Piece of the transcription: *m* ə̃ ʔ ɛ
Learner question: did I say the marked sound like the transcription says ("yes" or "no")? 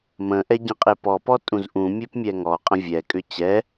yes